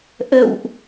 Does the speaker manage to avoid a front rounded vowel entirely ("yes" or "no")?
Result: yes